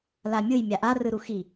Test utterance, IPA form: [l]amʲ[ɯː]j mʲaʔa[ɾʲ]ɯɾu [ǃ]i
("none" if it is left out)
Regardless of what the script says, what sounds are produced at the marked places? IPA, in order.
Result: l, ɯ, r, x

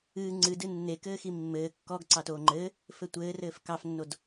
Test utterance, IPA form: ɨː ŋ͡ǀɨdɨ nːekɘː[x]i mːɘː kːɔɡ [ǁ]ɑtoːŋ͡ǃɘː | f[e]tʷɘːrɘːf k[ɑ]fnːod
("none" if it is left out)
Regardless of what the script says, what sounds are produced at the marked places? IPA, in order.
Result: x, ǀ, ɘ, ɑ

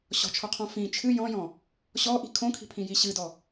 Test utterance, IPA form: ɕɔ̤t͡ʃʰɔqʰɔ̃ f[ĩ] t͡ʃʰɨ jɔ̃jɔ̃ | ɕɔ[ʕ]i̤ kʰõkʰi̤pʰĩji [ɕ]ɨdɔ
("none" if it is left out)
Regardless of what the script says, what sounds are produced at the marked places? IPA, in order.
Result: ĩ, ʔ, ɕ

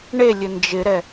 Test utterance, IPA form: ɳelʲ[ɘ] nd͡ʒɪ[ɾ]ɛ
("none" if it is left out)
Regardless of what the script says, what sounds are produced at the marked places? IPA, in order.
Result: ɘ, ɾ

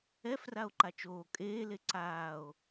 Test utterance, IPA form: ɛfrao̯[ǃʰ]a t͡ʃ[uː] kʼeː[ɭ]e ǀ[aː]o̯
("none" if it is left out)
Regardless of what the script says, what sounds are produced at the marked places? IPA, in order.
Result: ǃ, oː, l, aː

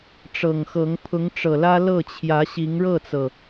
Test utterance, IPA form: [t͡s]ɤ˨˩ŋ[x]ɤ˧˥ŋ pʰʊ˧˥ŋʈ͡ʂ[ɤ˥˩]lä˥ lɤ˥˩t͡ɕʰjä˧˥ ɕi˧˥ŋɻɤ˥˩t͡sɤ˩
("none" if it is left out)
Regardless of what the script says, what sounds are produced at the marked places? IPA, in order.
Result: ʈ͡ʂ, x, ɤ˨˩

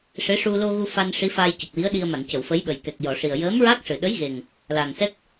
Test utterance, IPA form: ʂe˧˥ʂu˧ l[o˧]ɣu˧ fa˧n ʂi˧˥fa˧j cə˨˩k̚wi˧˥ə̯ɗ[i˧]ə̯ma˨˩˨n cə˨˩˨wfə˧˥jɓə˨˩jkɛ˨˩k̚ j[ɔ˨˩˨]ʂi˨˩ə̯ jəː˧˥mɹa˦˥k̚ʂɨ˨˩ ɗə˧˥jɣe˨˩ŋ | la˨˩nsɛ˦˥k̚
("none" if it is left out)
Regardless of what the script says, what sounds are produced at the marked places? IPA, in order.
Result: o˧, i˧, ɔ˨˩˨

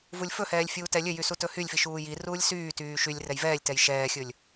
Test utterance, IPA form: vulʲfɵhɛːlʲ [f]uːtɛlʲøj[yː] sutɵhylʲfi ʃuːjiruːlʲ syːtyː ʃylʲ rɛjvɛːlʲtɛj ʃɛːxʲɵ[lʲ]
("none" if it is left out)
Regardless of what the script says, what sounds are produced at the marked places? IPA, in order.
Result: fʲ, y, lʲ

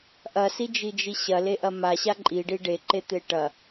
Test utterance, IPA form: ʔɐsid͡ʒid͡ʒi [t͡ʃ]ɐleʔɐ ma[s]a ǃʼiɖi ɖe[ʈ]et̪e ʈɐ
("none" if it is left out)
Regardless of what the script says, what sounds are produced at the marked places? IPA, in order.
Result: ɕ, ɕ, ǃ

